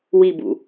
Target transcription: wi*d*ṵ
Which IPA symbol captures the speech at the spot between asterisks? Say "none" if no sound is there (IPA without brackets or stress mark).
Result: b